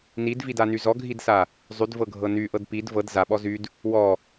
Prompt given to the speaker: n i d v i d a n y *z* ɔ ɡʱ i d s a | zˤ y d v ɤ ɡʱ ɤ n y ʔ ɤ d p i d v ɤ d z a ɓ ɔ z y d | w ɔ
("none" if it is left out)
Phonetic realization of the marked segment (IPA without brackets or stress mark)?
z